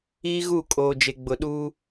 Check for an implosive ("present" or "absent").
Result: present